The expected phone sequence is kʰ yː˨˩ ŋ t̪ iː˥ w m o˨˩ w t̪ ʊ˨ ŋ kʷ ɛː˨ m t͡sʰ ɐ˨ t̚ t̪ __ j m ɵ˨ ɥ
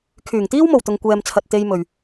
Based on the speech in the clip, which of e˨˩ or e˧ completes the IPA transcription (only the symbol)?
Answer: e˧